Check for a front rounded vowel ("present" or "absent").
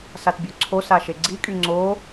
present